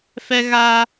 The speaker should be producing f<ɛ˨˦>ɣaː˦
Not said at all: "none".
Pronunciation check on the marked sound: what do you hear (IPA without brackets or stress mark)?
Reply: ɛ˦